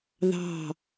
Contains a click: no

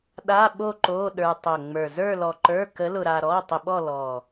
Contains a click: yes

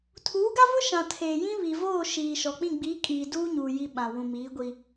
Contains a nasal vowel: yes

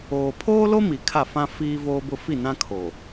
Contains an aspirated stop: yes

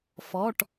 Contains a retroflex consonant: yes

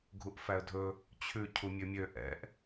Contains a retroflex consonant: no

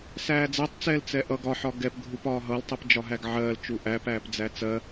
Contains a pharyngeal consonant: yes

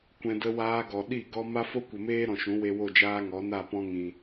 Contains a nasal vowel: yes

